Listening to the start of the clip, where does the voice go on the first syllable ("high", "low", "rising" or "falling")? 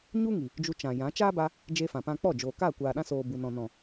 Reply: high